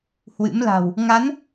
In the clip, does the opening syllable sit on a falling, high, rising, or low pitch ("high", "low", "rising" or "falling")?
rising